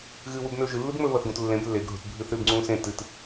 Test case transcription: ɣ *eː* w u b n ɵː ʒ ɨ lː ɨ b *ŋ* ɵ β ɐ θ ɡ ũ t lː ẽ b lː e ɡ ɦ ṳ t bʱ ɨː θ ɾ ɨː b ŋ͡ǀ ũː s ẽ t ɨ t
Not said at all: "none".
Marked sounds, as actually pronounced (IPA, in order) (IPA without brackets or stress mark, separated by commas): ɨː, ŋ͡m